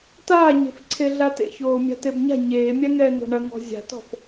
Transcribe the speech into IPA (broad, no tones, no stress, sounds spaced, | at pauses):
t aː ɲ e̤ f ǀʰ e ɮ a t ḛ ç oː mʲ a̤ t e b ɲ a̤ ɲ eː mʲ a ŋ ɛː n̪ o̤ ɳ ɐ ŋ ɔ̤ zʲ a̤ t ɔ̤ f